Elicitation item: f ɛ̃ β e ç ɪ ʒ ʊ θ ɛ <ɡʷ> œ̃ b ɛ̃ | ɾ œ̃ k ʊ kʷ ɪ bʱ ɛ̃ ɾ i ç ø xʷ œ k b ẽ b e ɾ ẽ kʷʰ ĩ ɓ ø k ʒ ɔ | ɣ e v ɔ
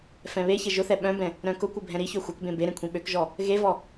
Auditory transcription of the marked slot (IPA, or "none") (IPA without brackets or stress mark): ɓ